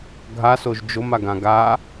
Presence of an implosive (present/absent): absent